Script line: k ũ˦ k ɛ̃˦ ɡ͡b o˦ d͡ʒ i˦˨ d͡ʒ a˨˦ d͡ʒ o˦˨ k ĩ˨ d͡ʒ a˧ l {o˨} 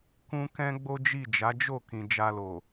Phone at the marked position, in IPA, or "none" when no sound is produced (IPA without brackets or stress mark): o˨